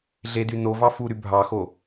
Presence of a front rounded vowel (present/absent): present